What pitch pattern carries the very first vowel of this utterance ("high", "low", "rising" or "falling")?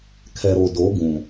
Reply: low